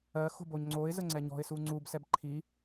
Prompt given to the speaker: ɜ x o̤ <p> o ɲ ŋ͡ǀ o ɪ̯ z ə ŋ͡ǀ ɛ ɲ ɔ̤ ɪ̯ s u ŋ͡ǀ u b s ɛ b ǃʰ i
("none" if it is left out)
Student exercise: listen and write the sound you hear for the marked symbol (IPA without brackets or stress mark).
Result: b